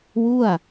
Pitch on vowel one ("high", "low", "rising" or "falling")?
falling